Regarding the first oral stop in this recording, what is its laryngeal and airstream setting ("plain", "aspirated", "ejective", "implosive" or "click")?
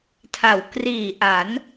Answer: aspirated